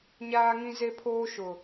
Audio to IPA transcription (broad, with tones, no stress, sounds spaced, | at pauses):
ɲ aː˦ ŋ ĩ˦ z e˦ pʰ oː˦ ʃ ʊ˨